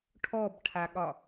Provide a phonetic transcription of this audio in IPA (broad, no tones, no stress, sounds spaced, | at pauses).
ʈʰ ɔ b ʈʰ a ɠ ɒ